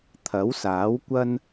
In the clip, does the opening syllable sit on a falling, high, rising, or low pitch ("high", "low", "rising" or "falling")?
rising